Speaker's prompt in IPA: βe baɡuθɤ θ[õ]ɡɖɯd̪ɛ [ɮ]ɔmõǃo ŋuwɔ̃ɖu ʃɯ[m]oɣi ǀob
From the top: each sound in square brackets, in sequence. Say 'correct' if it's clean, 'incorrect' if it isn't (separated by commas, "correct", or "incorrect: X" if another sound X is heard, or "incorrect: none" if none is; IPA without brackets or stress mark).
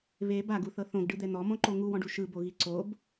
correct, incorrect: n̪, incorrect: b